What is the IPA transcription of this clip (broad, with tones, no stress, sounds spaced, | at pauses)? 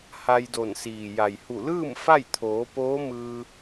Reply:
h a˧ j d o˧˩ n s iː˩ j a˩ j h u˧˩ l ɯː˥˨ m f a˥˨ j t̪ʰ oː˩˧ p oː˧˥ m ɯː˧